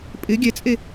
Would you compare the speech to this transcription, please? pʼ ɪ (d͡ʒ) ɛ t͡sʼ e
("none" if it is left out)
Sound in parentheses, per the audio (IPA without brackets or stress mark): ɡʲ